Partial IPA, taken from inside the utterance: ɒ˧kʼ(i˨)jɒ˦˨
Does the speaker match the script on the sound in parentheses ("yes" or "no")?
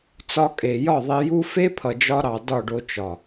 no